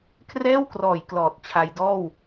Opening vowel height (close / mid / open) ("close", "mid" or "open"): mid